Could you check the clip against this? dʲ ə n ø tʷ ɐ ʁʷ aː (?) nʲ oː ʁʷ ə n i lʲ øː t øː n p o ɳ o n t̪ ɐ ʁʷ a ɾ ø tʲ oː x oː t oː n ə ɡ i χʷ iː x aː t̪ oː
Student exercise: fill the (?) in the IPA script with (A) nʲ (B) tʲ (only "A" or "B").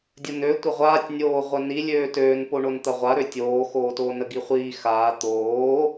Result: B